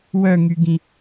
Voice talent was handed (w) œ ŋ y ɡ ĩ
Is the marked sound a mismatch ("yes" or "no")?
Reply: no